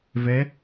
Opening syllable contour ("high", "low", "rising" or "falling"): rising